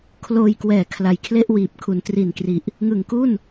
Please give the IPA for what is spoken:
kʰ l oː˧ j k w ɛː˨˩ kʰ l a˨˩ j kʰ l e˥˩ ʔ w iː˨˩ p̚ kʰ u˩˦ n t r i˨˩ n k r i˨˩ ʔ | ŋ ɯ˨˩ ŋ k u˥˩ n

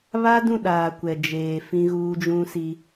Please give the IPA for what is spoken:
β a˦ d ũ˦˨ ɗ aː˨ kʷ ɛ˨ d͡ʒ eː˨ f ĩ˦ ɣ uː˦ d͡ʒ ũ˦ s i˦

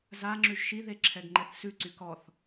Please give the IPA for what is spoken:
z a ŋ͡ǁ ʉ ʒ ʃ i ð e ǁʰ ɛ ɡ ŋ͡ǃ ɛ θ s ʉ ǀ y k ɔ θ

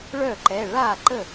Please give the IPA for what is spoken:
ɭ œ˥˩ ǃ ɛ˩˧˩ ɭ a˥˩ ǃ ə˥˩

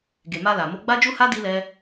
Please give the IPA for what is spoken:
ɡ e˨ m a˧ l a˨ m o˧ ɡ͡b a˦ d͡ʒ u˦ h a˦ d i˦ l ɛ˦

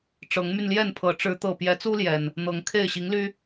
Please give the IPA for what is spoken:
ʈ͡ʂ ɤ˨˦ ŋ m y˧ n l j ɛ˥˨ n pʰ ɤ˨˦ ʈ͡ʂ ɻ̩˨˦ t̪ ɤ˨˩ p j ɛ˨˦ t͡s u˦ l j ɛ˨˩ n | n̪ ɤ˨˦ ŋ kʰ e˥˨ ɪ̯ ɕ i˨˦ ŋ l y˦

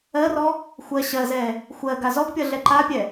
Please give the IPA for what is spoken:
ɜ r ɔ | xʷ ɜ ɕ ɜ z ɛ | xʷ ɜ ɡ a z ɔ ɡ pʲ ʌ ɮ ɛ ǃ a pʲ ɛ

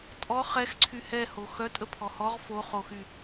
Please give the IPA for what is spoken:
tʼ ɔ χ ɛ x ǀʰ y h ɛ h o x œ tʼ ə pʰ ɔ h ɔ ʁ f o χ o x y

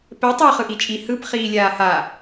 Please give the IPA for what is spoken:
p ɛ tˤ e χ ɯ ʔ i t͡ʃʼ i h ɯ p χ iː lʲ aː h a

